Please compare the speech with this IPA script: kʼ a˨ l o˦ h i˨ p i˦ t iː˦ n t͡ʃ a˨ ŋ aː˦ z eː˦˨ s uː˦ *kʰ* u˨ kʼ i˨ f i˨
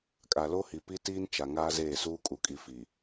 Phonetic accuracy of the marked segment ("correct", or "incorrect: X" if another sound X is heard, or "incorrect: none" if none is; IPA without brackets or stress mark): incorrect: kʼ